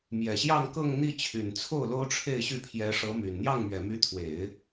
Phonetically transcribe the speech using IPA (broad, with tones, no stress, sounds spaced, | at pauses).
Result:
m j ɛ˨˩ ɕ j ɑ˥˧ ŋ k ɤ˥˧ ŋ n̪ i˥˩ t͡ɕʰ y˨˩ n t͡sʰ o˥˩ ʊ̯ l o˥ ʊ̯ ʈ͡ʂʰ e˥˧ ɪ̯ ɕ y˥˩ pʰ j ɛ˧˥ ʂ ɤ˧˥ m y˨˩ n n̪ j ɑ˥˩ ŋ m ɥ ɛ˨˩ m y˧˥ t̪ʰ w e˨˩˦ ɪ̯